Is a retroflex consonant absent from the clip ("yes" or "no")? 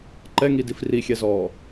yes